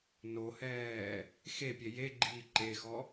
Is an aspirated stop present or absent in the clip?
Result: absent